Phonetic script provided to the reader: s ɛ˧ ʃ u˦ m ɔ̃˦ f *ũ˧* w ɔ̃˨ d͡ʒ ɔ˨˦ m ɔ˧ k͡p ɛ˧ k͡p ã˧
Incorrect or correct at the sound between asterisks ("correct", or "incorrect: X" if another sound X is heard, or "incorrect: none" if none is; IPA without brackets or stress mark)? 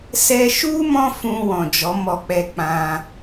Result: correct